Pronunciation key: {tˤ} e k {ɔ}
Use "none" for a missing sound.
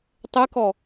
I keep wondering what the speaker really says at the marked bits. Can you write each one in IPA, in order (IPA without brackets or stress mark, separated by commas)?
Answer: tˤ, ɔ